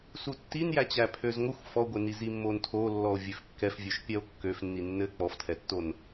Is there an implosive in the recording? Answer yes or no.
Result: no